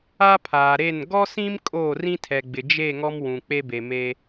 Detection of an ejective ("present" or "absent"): present